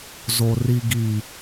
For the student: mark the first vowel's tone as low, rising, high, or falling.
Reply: low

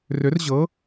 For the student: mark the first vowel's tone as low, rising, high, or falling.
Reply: rising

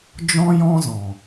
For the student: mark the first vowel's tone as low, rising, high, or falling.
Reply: high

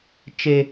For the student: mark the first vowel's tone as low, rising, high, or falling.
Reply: high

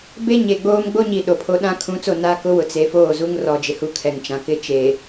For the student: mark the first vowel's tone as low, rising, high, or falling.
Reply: high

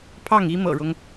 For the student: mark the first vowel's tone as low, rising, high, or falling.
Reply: falling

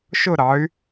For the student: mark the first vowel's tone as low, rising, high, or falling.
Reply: falling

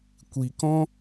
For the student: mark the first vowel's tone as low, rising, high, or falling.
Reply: low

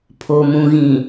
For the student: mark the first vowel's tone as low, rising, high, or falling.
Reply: low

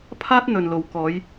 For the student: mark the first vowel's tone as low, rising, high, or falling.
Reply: high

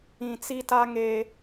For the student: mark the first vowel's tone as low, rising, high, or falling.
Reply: low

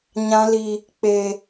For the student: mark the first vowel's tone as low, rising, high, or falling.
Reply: high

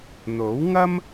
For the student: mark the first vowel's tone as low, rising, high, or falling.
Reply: rising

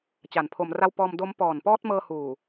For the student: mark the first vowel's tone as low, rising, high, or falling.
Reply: low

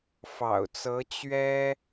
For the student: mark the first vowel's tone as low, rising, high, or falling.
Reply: low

